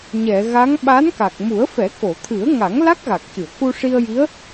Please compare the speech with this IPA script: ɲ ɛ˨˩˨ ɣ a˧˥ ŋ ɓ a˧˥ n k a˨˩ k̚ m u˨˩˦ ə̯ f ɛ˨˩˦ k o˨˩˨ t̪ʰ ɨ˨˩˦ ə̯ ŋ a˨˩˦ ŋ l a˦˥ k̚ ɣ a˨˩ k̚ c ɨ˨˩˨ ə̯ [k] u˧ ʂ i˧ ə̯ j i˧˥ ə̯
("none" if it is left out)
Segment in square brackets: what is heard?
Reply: k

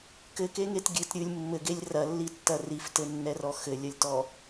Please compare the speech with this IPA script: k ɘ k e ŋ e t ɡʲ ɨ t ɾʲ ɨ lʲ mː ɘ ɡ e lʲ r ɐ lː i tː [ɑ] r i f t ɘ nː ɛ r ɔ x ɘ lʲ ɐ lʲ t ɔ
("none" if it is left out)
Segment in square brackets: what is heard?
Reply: ɐ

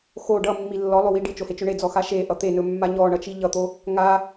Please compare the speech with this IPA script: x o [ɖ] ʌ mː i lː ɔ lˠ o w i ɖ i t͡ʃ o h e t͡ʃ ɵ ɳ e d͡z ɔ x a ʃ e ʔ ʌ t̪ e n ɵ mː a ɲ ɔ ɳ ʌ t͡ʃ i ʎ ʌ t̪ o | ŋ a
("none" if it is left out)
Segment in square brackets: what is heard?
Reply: ɖ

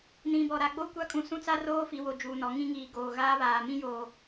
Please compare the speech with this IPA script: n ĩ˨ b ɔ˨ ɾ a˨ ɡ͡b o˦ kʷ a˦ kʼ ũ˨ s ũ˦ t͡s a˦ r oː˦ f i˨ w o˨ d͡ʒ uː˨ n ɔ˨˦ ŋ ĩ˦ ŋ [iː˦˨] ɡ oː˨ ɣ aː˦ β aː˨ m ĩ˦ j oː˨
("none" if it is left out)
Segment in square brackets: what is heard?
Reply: iː˨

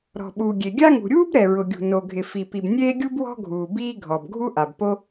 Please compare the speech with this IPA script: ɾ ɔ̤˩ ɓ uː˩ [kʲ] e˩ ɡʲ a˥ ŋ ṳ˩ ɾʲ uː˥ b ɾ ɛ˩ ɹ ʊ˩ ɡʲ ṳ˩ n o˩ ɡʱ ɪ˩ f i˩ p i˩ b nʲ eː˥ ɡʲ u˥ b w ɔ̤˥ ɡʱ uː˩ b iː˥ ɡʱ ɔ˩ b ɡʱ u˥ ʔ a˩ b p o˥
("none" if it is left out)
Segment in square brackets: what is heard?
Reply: ɡʲ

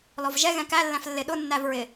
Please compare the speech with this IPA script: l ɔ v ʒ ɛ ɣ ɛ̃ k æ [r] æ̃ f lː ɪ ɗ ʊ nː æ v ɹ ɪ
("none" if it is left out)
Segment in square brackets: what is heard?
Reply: lː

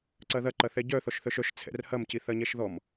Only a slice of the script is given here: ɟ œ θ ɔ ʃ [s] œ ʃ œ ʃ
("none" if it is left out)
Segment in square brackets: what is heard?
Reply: θ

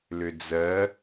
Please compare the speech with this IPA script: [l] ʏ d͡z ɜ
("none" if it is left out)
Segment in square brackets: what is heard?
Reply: l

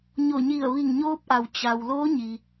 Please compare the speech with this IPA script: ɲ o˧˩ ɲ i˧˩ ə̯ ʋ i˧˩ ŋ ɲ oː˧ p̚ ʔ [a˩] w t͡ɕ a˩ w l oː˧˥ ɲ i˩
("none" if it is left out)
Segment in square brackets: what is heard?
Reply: a˩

